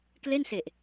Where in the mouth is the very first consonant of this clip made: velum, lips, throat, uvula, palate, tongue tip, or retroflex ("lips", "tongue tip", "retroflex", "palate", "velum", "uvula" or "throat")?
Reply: velum